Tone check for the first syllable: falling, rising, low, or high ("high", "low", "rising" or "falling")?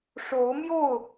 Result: rising